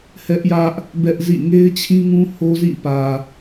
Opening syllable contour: high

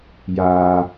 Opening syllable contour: low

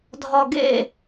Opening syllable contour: low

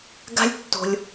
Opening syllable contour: high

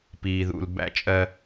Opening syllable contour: low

